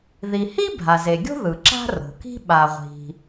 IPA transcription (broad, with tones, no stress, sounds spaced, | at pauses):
ð i˩ h i˥ bʱ a˩ z e˩ ɡʲ o̤˥ ð ɯ˩ ǁ a̤˥ r o̤˩ k i̤˥ ɓ a˩ ʁʷ i̤˩